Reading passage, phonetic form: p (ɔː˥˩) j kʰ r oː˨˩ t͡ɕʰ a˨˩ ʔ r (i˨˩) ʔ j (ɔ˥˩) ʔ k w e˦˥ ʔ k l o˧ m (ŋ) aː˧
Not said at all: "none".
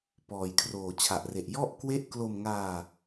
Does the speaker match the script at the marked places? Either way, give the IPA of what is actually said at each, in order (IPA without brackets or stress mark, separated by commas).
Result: ɔː˨˩, e˨˩, ɔ˥˩, ŋ